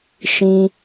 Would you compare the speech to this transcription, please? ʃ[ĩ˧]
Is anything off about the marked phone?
no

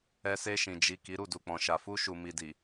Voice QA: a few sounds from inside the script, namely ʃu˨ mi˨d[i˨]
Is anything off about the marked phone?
no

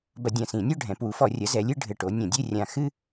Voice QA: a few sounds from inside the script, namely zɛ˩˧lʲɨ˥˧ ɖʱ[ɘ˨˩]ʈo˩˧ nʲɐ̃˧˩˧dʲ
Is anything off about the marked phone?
no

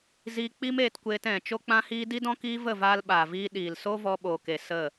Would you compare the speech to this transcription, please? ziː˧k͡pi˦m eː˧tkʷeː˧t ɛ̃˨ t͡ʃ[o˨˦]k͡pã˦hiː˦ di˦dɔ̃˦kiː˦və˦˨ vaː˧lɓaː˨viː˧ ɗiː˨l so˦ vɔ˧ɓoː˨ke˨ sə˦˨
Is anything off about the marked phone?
yes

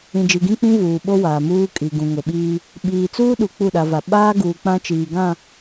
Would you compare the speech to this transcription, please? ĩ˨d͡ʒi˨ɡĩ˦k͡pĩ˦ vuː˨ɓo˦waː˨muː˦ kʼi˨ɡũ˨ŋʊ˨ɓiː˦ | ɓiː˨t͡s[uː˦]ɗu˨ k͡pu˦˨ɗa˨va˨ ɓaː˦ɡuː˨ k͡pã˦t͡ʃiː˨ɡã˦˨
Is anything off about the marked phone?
no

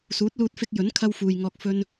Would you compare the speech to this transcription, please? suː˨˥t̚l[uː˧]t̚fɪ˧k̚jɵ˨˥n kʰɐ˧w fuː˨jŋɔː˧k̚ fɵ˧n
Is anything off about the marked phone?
no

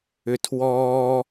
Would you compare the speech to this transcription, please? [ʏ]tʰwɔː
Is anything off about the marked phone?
no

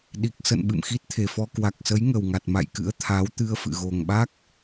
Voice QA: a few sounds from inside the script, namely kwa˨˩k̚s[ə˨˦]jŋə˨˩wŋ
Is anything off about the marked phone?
no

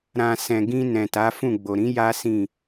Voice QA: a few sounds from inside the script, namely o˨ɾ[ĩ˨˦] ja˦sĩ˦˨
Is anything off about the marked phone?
no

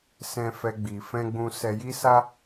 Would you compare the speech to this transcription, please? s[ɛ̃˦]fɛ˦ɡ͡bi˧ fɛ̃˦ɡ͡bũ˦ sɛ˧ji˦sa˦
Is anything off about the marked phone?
no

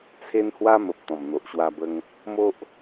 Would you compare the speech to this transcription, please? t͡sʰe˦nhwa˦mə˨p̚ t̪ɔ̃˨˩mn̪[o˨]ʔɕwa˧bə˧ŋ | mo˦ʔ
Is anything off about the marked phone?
no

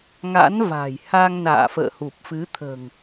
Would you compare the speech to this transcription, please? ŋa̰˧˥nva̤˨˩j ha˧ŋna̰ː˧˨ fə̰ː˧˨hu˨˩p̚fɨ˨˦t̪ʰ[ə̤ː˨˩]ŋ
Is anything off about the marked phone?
no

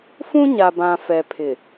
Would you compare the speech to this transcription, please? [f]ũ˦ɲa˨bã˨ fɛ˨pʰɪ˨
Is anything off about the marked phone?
no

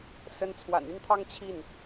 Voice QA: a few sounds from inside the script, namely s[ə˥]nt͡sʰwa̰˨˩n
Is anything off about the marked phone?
yes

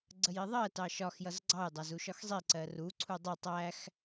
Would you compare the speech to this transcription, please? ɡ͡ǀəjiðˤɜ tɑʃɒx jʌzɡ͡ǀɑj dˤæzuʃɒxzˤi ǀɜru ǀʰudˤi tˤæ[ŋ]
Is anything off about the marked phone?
yes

